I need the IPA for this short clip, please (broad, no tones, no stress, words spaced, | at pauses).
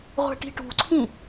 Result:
ʁʷɛ̤ʈi̤ʈṳǀʰĩ